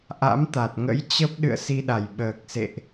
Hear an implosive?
yes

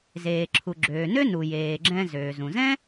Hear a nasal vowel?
yes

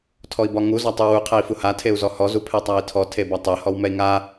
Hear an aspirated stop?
yes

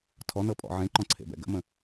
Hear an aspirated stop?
yes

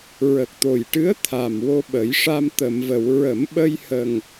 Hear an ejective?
no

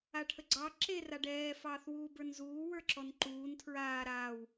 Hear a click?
yes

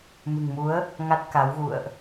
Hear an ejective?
no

